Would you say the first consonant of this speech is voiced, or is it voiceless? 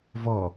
voiced